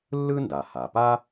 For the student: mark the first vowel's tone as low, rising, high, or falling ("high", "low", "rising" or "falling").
high